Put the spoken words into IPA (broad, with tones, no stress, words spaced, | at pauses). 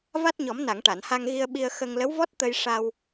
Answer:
va˦˥t̚ɲɔ˨˩˦mna˨˩˨ŋ ʈa˨˩˨nha˧ŋɣi˧ə̯ɓi˧ə̯ xə˧ŋ lə˧˥wvɔ˦˥t̚ t̪ə˧jʂa˧w